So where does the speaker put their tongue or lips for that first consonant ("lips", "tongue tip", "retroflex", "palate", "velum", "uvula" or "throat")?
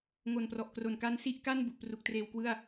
velum